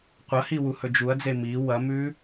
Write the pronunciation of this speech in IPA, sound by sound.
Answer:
qʷ ɐ h i w u h ɵ d͡ʒ u ɐ̯ d͡z e m i w ɐ m ʉ

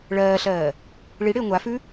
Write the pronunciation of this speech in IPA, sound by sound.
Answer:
ɭ ɜː ɬ ɜː | ɭ i ɽ ɪː ŋʷ a f ʉ

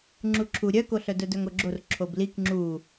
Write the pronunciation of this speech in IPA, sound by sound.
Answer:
ŋ͡ǁ u ǁʰ u ɾʲ œ k o ɬ œ d œ d œ ŋ o ɡ͡ǁ o r ǁʰ o b l i k ŋ͡ǁ u

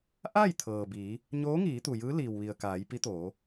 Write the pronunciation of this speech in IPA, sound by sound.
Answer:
ʔ a˥˨ j t̪ʰ ɤː˩ b iː˩˧ | ɲ oː˧˥ ŋ iː˩˧ t̪ u˩ j ɯː˧˥ l iː˩ w ʋ i˩ ə̯ k aː˩˧ j p i˧˥ t̪ oː˩˧

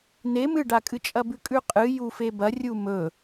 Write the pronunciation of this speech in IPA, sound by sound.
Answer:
n e m ɨ ɖ a kʼ ɨ t͡ʃʼ ɐ b ʉ kʼ ʉ qʼ ɨ j u f e b ɐ rʲ u m ɵ

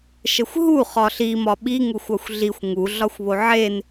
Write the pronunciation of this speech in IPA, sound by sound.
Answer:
ʃ ə xʷ ɦ u χ ɒ ɬ i m ɒ ɓ i ŋ u xʷ ɒ xʷ ɮ i xʷ ŋ u ɮ ɒ xʷ β o ʕ e n

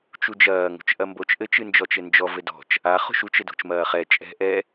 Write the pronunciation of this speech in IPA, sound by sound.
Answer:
t͡ʃ u d͡ʒ ɐː ŋ o̤ t͡ʃ ʔ ɐ m b o t͡ʃ ʔ ɘ t͡ʃ ɨ n d͡ʒ ɔ t͡ʃ ɘ n d͡ʒ ɔ v ɘ d ɔ̤ t͡ʃ | a χ o̤ ʃ u t͡ʃ ɘ d o̤ t͡ʃ m ɐː χ ɛ t͡ʃʼ ɛ̤ ʔ ɛ

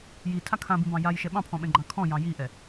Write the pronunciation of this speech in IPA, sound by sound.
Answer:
j i tʰ a kʰ ã b ĩ b ɑ̃ j a j ʃ ɛ ɓ ɑ̃ pʰ ɔ̃ ɓ ɛ̃ ɡ͡ǃ ɑ̃ kʰ ɔ̃ j ɑ̃ j i ʔ ɛ

